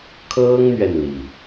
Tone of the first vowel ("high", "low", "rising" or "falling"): high